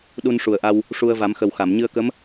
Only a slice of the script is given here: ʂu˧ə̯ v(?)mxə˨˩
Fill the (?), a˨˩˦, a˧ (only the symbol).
a˨˩˦